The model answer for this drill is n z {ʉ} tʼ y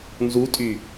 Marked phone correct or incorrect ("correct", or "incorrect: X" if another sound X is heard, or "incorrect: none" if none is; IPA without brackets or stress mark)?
incorrect: u